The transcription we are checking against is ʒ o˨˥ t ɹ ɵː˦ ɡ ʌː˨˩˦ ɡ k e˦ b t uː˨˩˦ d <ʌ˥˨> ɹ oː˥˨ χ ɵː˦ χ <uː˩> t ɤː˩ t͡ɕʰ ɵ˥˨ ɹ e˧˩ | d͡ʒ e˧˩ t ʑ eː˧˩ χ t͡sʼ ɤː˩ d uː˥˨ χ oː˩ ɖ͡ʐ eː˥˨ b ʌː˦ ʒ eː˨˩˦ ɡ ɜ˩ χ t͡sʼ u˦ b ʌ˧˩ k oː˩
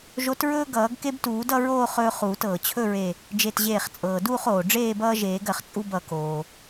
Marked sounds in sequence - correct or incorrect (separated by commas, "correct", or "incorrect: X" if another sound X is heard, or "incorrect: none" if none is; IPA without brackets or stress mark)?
correct, incorrect: uː˨˩˦